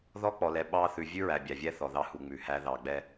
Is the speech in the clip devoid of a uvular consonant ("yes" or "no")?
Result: yes